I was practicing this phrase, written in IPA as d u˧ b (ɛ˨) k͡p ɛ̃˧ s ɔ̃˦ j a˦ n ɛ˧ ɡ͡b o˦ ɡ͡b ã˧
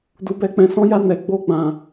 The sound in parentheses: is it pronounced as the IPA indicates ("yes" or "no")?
no